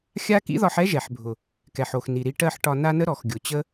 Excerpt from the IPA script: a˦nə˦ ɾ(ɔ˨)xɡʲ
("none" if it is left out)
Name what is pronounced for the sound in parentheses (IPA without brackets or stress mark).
ɔ˨